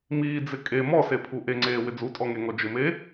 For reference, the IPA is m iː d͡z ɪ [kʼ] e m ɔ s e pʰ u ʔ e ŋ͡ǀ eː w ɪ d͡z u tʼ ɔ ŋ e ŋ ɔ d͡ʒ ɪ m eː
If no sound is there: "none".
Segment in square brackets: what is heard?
kʼ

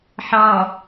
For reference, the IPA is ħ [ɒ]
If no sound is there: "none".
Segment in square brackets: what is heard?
ɑ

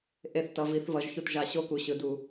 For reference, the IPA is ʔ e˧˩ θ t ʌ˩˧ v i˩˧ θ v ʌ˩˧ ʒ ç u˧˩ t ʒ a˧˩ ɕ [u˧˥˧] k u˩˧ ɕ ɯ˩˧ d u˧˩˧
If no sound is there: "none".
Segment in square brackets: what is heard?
o˧˥˧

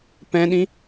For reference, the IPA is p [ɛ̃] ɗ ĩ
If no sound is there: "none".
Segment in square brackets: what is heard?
ɛ̃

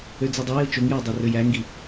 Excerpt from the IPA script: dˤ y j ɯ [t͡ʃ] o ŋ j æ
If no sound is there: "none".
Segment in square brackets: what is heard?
t͡ʃ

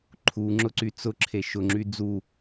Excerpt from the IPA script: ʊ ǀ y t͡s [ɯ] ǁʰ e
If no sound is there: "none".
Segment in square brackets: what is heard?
ʊ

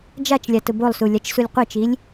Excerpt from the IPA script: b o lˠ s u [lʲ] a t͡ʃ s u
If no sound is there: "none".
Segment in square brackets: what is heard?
lʲ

